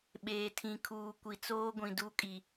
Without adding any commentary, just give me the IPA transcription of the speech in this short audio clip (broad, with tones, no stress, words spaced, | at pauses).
ɓeː˨tʰĩ˨kʰuː˨ kʷi˨t͡soː˦ ɡʷĩ˨du˦˨kʼi˨